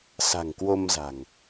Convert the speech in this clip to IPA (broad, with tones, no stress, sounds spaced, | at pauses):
s a̤˨˩ ŋ k w o˧ m z a̤˨˩ ŋ